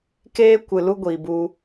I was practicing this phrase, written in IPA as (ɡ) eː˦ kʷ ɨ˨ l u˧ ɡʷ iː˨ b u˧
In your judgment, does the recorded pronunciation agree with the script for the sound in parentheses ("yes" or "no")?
no